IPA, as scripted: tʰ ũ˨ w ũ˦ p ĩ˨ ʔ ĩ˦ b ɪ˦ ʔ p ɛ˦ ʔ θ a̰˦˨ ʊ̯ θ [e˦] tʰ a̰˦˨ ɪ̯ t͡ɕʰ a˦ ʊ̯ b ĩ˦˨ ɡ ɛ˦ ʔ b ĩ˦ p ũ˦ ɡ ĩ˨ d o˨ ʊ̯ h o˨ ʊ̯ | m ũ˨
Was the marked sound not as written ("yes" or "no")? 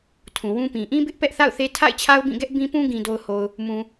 no